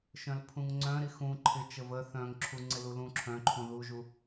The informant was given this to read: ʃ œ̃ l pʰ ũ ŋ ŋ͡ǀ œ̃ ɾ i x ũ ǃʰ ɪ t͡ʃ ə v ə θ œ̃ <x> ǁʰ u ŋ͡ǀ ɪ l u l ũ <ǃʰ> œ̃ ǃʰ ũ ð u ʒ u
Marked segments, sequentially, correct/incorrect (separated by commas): incorrect, incorrect